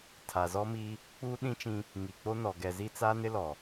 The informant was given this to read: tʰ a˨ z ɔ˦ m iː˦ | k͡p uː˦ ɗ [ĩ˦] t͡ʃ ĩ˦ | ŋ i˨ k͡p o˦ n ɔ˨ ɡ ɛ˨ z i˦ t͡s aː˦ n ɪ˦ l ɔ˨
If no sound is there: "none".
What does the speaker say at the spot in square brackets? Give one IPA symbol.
ĩ˦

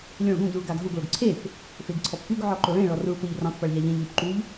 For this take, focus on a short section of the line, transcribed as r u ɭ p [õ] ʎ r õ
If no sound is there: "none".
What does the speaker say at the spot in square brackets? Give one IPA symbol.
o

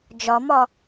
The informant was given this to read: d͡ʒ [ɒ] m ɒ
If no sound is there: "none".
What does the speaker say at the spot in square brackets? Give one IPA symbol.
ɒ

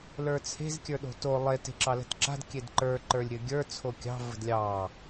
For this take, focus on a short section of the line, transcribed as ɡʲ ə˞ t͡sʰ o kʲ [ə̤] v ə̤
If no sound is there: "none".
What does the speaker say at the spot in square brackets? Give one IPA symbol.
ɑ̤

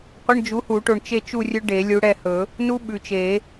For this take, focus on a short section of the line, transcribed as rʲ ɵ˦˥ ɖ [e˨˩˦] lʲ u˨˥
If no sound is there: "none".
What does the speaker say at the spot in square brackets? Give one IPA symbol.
e˨˩˦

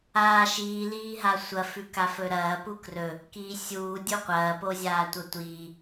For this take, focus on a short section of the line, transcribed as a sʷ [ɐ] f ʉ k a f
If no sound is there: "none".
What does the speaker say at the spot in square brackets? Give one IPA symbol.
ɐ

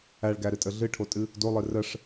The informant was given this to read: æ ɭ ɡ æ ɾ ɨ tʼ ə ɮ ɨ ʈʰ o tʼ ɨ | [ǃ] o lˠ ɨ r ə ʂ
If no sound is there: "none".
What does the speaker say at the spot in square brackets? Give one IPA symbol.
d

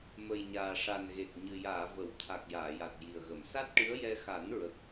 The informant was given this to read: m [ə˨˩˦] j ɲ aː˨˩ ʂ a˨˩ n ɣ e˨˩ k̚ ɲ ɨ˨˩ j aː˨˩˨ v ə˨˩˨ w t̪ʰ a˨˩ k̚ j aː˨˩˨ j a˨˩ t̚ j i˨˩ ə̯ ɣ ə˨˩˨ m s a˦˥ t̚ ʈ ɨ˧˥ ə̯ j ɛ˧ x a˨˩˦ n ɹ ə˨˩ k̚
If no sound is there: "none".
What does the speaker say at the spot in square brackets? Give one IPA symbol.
ə˨˩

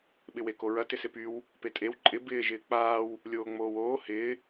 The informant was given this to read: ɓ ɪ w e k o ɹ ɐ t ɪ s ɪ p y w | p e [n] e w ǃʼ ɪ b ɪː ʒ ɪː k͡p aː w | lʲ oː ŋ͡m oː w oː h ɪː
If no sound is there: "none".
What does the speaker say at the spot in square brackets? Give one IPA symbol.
tʼ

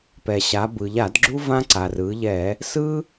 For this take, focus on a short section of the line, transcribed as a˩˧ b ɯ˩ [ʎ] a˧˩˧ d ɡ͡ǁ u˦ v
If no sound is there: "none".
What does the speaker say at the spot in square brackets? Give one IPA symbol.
ʎ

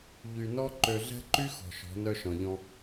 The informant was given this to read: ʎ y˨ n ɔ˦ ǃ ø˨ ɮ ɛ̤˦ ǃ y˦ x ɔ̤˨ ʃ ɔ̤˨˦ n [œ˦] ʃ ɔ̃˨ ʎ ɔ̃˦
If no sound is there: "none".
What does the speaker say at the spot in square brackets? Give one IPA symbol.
œ˦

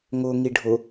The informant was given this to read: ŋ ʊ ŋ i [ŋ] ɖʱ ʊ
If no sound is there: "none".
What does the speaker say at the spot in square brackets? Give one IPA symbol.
none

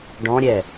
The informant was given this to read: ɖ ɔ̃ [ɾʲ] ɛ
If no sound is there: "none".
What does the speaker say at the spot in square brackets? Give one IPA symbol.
ɾʲ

